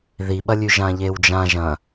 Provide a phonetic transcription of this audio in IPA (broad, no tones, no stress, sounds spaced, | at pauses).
ð i ɓ ɐ lʲ ʉ ʒ ã ʎ e w d͡ʒ ã ʒ ɐ̃